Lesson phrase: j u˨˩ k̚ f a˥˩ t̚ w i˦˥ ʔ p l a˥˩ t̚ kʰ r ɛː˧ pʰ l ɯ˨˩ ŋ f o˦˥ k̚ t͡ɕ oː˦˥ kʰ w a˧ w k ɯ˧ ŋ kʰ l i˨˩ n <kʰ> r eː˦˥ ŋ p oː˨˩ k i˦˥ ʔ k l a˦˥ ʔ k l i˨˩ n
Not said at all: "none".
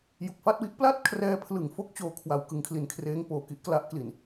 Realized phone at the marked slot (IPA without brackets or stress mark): kʰ